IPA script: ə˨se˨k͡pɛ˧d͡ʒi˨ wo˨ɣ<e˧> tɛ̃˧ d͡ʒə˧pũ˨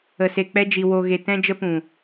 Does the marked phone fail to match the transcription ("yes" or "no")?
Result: yes